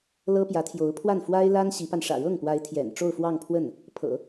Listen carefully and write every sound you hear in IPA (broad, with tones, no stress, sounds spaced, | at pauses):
l ɤ˥ p j ä˧˥ t̪ʰ j o˧˥ ʊ̯ pʰ w a˥˩ n f w a˥ ɪ̯ l a˥ n ɕ i˧˥ p a˧ n ʂ ä̰˨˩ ɻ ɤ˥˩ ŋ p w a˧˥ ɪ̯ t̪ʰ j ɛ̰˨˩ n ʈ͡ʂ o˥˧ ʊ̯ f w ɑ˥˧ ŋ pʰ w ə˥˩ n | pʰ ɤ̰˨˩˦